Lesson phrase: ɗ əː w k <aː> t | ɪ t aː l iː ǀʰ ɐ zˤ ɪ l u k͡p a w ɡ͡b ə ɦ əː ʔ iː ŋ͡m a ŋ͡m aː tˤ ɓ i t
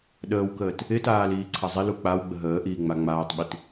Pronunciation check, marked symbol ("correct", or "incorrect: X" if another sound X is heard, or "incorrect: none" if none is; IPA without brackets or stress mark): incorrect: əː